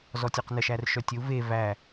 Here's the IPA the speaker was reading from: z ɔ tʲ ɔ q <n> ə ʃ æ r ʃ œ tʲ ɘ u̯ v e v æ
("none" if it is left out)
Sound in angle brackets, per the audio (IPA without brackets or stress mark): n